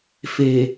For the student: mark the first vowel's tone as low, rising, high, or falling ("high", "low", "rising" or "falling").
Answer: low